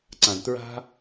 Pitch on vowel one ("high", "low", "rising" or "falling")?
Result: low